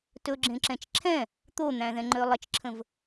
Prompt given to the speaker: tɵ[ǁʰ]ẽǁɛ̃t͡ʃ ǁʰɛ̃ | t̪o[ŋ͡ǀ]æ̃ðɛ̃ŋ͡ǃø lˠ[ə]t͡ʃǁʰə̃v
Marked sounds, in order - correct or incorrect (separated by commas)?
incorrect, incorrect, correct